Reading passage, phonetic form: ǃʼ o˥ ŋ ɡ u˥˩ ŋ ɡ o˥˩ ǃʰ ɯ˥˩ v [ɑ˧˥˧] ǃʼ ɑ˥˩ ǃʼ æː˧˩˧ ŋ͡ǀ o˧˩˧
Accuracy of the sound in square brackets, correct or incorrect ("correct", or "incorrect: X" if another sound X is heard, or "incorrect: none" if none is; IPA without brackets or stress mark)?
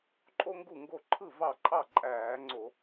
incorrect: ɑ˥˩